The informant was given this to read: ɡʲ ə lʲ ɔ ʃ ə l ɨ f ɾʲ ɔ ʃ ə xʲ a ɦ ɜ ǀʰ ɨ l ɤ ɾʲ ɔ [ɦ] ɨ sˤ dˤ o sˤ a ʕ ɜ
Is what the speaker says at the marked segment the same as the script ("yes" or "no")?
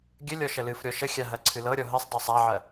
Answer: yes